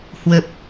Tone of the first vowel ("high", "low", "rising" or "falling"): low